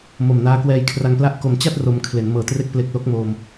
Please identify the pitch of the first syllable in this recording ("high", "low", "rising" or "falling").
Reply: low